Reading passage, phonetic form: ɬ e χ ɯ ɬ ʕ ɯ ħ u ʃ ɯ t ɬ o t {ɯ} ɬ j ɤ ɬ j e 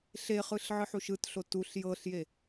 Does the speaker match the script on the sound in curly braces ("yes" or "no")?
no